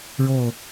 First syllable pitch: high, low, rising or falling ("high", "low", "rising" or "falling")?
falling